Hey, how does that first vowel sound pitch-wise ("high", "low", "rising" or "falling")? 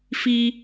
high